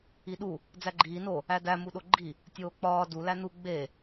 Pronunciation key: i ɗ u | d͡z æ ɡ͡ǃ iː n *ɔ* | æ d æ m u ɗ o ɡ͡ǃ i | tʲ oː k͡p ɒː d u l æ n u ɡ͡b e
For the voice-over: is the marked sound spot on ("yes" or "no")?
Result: no